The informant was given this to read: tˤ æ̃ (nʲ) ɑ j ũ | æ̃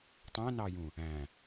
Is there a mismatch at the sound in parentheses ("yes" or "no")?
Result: yes